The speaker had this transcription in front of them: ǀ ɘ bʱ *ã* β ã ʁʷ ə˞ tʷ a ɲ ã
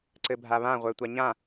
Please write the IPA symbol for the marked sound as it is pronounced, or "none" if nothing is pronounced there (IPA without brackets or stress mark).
a